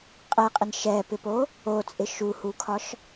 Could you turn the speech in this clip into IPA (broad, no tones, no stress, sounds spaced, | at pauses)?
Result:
qʼ ɛ qʼ ɪ n ʃ ɛ p ɪ p o | o t͡sʼ ɪ ʃ u h u kʰ ɒ ʃ